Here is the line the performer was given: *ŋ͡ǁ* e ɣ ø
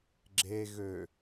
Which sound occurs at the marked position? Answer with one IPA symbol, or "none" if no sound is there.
ɡ͡ǁ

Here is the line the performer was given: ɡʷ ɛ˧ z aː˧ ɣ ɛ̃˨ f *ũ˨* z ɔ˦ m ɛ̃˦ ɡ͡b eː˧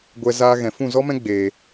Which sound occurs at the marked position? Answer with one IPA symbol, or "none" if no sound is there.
ũ˦˨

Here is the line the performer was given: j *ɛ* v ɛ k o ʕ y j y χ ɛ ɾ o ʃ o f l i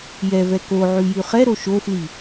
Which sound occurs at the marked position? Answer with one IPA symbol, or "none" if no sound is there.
ɛ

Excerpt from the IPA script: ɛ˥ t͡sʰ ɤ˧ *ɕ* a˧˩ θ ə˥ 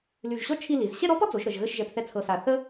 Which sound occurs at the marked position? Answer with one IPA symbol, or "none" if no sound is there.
s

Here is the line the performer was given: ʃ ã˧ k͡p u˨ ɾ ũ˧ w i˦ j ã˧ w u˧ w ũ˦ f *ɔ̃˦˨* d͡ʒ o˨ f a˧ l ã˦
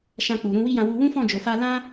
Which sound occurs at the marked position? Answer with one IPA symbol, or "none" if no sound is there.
ɔ̃˦˨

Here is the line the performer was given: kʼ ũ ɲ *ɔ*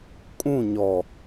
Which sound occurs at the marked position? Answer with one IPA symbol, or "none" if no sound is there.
ɔ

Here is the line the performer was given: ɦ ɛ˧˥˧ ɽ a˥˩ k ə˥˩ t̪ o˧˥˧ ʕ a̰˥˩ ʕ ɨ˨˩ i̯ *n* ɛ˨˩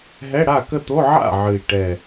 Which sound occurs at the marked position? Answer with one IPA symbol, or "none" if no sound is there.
ʈ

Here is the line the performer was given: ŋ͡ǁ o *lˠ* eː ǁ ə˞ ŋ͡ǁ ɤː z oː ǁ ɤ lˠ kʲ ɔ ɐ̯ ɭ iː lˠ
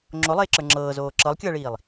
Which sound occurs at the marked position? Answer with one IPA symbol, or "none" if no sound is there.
lˠ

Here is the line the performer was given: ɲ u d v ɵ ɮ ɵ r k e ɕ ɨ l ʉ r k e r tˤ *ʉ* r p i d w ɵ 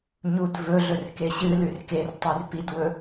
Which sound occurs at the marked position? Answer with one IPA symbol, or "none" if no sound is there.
ʉ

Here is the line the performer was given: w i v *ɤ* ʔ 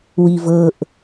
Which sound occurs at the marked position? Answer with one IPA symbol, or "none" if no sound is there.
ɤ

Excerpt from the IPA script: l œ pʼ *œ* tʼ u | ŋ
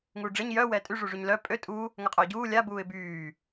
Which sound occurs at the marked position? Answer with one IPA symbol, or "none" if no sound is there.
ø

